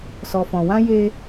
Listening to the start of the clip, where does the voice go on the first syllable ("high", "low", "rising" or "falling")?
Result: low